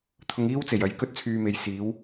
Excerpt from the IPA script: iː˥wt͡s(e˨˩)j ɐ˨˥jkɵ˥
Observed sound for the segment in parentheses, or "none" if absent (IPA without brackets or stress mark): e˨˩